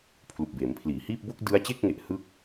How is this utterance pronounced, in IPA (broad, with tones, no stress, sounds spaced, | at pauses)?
pʰ l u˨˩ k̚ b eː˩˦ m pʰ l iː˩˦ h iː˥˩ p̚ b o˥˩ k̚ d ɯ˦˥ a̯ t͡ɕ e˥˩ k̚ ŋ e˨˩ ʔ h ɯ˥˩ k̚